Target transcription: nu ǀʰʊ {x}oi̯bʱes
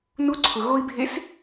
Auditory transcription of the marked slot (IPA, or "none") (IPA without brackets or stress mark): ɣ